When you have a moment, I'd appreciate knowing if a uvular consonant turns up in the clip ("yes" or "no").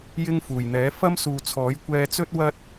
no